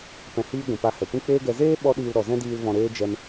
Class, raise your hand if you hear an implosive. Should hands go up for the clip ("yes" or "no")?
yes